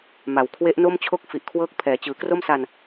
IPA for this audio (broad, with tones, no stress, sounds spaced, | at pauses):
m a˩˦ w kʰ w e˦˥ ʔ n o˥˩ m t͡ɕʰ o˥˩ k̚ f i˨˩ ʔ kʰ w ɤː˥˩ k̚ pʰ ɛː˩˦ t͡ɕ ɯː˩˦ k r o˥˩ m s a˧ n